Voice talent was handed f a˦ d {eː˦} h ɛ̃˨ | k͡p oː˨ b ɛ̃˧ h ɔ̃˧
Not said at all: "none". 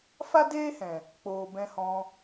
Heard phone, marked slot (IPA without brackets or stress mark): eː˦